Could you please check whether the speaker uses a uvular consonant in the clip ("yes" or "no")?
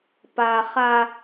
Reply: yes